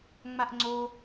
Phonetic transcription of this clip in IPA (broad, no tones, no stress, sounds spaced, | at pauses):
ŋ͡m a ʔ ŋ͡ǀ o